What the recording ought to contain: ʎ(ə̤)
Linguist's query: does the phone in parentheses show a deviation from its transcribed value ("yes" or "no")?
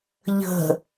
no